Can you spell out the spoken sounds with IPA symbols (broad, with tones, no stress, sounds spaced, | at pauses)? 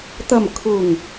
t̪ ɐ˨˩ m kʰ ʊ˨˩ ŋ